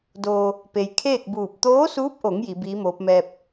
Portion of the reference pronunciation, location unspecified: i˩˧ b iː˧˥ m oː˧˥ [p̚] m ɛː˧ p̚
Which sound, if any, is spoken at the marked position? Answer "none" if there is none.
p̚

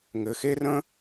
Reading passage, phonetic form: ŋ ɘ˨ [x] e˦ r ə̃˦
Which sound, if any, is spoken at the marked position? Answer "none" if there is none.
x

